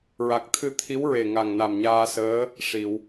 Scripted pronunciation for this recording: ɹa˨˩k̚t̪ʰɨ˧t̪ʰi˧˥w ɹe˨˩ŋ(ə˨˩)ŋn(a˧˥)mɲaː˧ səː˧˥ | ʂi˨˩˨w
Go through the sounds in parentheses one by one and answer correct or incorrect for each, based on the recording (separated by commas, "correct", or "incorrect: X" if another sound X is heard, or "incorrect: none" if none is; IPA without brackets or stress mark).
incorrect: a˨˩, incorrect: a˨˩